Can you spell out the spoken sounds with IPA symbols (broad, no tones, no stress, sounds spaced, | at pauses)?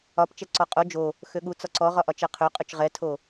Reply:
ɒ p t͡ʃ ɛ ǀ ɔ qʼ o d͡ʒ o | x ø ɠ u t͡s ɒ ǀ ɔ ʁ ɒ ʔ ɒ t͡ʃ ɛ qʰ ø qʼ ø t͡ʃ ʁ ɛ tʰ o